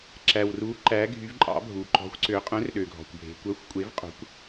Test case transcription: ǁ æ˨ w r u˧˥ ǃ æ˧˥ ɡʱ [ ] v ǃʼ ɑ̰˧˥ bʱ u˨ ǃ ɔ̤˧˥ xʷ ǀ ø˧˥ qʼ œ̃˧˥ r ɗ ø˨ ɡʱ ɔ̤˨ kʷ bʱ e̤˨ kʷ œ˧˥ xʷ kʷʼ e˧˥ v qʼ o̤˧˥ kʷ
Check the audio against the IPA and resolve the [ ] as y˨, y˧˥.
y˧˥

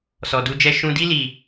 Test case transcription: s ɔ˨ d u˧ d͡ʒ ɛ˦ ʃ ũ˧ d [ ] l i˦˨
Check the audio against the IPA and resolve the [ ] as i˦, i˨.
i˦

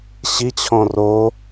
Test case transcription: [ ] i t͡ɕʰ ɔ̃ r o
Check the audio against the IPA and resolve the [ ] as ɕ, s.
ɕ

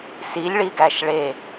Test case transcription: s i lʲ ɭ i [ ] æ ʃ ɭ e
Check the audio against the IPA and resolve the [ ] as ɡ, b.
ɡ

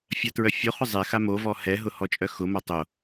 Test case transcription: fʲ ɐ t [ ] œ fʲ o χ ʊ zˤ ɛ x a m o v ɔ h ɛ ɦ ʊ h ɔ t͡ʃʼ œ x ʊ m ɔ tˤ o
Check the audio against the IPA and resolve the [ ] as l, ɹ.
ɹ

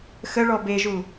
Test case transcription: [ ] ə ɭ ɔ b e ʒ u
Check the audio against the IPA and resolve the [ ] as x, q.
x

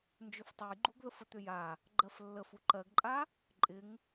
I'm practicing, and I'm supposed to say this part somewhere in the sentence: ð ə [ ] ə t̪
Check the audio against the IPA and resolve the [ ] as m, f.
f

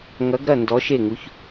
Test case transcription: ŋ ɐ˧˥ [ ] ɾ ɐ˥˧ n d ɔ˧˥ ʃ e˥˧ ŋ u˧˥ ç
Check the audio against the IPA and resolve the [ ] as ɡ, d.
ɡ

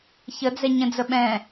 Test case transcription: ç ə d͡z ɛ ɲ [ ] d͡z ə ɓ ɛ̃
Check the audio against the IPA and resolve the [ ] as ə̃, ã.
ə̃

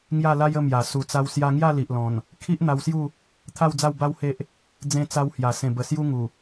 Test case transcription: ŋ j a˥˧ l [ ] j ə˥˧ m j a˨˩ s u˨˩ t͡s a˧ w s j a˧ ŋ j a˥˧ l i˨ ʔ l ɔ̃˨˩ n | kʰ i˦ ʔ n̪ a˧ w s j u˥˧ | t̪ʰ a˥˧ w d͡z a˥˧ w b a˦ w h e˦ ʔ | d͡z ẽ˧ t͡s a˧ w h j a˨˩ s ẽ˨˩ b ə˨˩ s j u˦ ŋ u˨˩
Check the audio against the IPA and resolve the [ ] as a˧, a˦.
a˦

